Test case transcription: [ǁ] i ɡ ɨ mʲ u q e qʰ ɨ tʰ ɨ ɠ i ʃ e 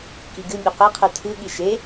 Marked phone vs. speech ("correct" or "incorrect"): incorrect